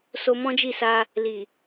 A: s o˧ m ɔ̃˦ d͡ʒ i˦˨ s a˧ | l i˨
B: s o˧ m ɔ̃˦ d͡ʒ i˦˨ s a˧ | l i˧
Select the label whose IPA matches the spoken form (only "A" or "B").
A